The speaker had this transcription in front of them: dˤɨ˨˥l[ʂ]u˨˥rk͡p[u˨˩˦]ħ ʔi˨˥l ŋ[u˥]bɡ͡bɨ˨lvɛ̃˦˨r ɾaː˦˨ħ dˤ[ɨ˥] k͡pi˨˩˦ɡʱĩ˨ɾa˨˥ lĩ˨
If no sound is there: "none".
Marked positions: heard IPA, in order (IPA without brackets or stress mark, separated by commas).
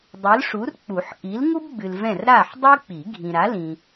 ʂ, u˨˩˦, u˥, ɨ˥